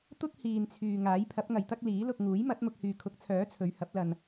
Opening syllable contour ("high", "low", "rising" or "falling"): high